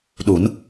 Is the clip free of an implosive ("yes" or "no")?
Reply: no